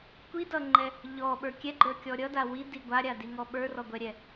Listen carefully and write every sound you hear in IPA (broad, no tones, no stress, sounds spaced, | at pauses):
kʷ i d ʌ ŋ͡ǃ ɛ | ʎ ɔ ɓ ə˞ kʲ ɛ ɡ͡ǃ ə˞ kʲ ɔ ɾʲ ʌ d a w i d i ɡʷ a ɾʲ a d i ŋ ɔ ɓ ə˞ r ɔ ɡʷ ɛ ɾʲ ɛ